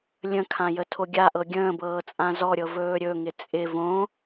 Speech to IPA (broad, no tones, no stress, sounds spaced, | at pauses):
lʲ ə̃ kʰ ã j ə tʰ o ɡʲ a ʔ ɤ ɡʲ ə̃ː b ɤː t͡sʼ ã z ɔ ɾʲ ɤ v ɵː ɾʲ ɵ ŋ ɪ t͡sʼ ɪ v õ